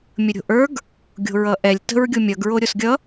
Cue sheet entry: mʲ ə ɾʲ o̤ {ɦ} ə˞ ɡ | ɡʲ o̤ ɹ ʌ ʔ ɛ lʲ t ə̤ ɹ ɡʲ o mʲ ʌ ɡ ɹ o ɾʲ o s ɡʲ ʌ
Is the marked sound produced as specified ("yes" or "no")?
no